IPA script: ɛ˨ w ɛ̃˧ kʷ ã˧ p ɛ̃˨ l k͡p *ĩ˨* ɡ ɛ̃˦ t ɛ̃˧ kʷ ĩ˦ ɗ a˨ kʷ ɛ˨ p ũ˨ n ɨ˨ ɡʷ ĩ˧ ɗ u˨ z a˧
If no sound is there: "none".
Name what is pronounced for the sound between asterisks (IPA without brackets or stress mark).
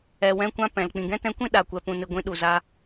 ĩ˨